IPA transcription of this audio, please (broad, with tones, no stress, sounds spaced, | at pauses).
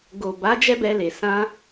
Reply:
ɡ o˨ b a˨˦ d͡ʒ ɛ˦ b ɛ˧ l e˨ s ã˧